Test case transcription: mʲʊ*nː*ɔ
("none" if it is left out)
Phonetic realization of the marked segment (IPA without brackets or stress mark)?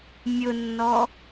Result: nː